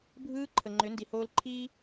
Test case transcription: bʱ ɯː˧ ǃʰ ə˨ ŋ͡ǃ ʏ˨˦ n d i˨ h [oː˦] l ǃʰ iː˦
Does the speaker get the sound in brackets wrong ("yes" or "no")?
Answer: yes